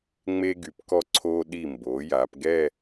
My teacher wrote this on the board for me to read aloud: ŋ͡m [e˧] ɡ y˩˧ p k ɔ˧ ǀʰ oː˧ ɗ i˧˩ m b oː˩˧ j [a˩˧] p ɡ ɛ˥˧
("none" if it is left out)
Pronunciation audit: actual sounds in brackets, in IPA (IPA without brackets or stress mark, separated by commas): e˧, a˩˧